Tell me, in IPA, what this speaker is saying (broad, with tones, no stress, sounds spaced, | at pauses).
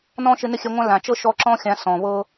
n ɔ̃˧ ʃ ɪ˧ n ɪ˦ xʲ ɛ˧ ŋʷ ã˦ l ã˨ t͡ʃ ɤ˦ ʃ ɔ˧ ǁ ɔ̃˦ xʲ ã˨˦ s ɔ̃˨ β ɤ˦